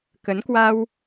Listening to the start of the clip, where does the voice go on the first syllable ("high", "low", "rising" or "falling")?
rising